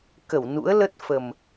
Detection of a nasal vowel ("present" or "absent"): absent